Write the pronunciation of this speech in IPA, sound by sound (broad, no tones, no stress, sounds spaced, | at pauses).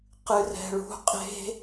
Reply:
q ɨ r ɛ̤ ɭ ṳ qʼ e̤